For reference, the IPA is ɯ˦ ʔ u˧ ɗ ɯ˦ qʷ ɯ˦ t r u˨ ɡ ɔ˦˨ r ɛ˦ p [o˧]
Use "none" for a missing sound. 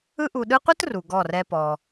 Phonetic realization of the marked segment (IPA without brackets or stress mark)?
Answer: ɔ˧